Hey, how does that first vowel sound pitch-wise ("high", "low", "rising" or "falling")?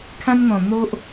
high